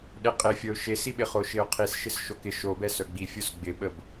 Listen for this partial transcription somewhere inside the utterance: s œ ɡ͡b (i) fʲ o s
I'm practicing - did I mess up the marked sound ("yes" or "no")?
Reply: no